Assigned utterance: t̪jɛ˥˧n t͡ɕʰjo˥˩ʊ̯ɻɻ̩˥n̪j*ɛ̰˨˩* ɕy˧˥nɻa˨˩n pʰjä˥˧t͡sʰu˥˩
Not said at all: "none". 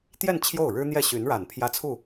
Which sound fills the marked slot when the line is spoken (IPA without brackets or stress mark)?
ɛ˥˩